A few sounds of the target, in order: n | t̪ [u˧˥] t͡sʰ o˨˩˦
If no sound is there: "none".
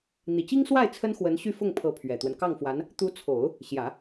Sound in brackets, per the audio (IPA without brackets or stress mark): u˧˥